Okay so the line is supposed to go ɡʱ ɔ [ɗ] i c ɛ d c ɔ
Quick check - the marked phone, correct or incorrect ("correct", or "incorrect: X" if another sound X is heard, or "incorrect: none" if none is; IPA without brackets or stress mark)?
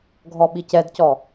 incorrect: ɓ